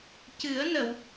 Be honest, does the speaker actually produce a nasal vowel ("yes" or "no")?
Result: no